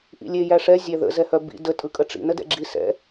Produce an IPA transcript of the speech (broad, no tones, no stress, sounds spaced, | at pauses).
ʔ ḭ lʲ e j æ ʂ ɛ zʲ æ ð ə̰ z ɛ h œ b ḭ d ə tʼ ɯ kʼ ə ʈ͡ʂ ḭ n ə d ɛ̰ ɡ͡ǁ i s ɛ̰